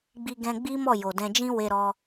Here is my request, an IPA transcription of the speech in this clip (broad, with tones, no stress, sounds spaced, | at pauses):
ɡ͡b i˧ ɡ ɛ̃˧ ɡ͡b i˦ m ɔ˦˨ j o˨ d ɛ̃˧ d͡ʒ ĩ˦ w e˧ ɾ ɔ˧